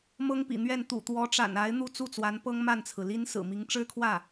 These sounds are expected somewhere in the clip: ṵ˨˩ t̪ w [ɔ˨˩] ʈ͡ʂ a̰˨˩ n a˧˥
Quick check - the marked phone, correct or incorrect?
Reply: incorrect